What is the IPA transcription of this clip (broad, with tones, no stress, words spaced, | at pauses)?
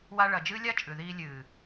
wa˧ɭɐ˨d͡ʒɨː˦ lʲa˦ t͡ʃʼʉ˨ðiː˧ lʲɨː˨